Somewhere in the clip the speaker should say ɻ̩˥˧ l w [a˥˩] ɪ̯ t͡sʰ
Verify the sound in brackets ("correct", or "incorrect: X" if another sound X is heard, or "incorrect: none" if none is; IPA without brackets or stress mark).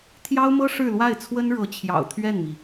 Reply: correct